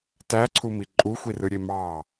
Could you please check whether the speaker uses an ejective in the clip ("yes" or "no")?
yes